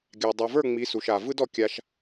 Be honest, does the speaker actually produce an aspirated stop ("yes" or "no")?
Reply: no